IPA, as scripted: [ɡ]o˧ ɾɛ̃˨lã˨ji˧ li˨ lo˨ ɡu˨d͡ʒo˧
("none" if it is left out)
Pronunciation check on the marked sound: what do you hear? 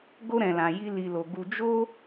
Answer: ɡ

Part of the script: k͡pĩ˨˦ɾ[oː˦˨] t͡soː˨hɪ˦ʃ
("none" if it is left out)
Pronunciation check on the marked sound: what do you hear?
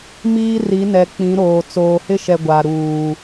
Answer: oː˨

